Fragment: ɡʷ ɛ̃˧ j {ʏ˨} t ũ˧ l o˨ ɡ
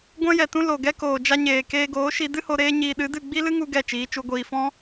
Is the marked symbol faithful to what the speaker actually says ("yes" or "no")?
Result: no